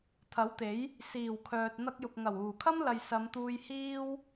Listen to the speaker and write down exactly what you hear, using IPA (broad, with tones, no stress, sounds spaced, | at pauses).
t̪ʰ ɐ˨˥ w t̪ e˨˥ j | s iː˨˩ w kʰ œː˨ t̚ n̪ ɐ˧ k̚ j ʊ˨ k̚ ŋ ɐ˨˩ w uː˨˩ kʰ ɐ˥ m l ɐ˨ j s ɐ˨˧ m t̪ uː˧ j h iː˥ w